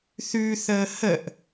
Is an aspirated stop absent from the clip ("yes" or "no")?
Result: yes